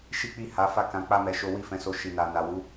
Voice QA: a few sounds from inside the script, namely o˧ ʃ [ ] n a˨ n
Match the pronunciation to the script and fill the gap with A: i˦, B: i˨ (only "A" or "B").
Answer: B